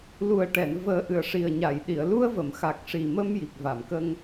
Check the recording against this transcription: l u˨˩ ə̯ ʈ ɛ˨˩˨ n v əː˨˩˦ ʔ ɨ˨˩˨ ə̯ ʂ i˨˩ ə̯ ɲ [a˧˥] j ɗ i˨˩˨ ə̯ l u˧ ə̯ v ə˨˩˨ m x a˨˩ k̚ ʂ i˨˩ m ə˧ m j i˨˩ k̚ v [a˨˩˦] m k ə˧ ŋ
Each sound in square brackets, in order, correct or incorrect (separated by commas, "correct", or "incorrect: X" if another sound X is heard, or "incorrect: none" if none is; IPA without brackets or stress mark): incorrect: a˨˩˨, incorrect: a˨˩˨